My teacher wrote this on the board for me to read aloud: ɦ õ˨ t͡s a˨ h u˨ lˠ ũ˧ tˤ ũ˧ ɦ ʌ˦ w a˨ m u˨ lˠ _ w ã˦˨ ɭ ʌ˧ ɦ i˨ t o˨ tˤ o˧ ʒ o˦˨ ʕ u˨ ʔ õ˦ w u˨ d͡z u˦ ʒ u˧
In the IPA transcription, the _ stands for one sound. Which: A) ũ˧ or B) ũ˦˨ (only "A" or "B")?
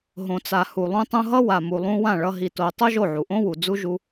A